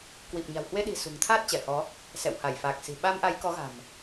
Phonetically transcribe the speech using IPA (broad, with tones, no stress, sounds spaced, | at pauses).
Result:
k w i˨˩ p̚ ɲ a̤˨˩ w h w e˧ ɗ i̤˨˩ s ṳ˨˩ ŋ t̪ʰ aː˦˥ t̚ t͡ɕ ɛ˧˩ h ɔ˨˦ | s ɛ̰˧˨ w h a˧˩ j f aː˨˩ k̚ s i̤˨˩ ɓ a˧ m ʔ a˨˦ j k ɔ˨˦ ɣ a̤˨˩ m